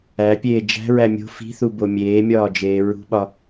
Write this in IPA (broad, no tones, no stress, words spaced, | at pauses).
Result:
æpʲeː d͡ʒæ̤ɹæ mʲo̤ fi̤θubo mʲeːmʲɒːd͡ʒeː ɹṳɓɒ